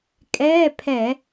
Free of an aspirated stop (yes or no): no